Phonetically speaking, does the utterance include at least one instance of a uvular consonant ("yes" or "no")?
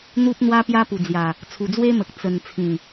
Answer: no